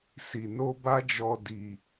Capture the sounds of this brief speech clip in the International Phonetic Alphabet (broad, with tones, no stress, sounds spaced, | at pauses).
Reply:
s i˨ n o˧ b a˦ d͡ʒ ɔ˧ d i˧